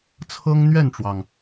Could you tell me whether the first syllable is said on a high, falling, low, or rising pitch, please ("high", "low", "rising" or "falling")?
high